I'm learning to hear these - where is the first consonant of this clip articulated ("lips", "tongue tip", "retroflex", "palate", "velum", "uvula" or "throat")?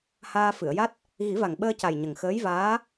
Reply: throat